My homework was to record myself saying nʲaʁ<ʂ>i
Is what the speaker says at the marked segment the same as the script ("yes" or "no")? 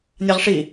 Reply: yes